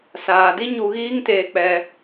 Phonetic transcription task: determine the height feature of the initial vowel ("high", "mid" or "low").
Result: low